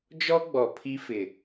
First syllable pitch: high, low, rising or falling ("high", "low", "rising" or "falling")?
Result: high